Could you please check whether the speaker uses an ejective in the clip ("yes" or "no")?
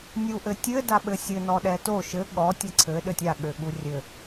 no